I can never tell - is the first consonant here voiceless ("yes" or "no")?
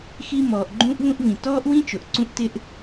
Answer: yes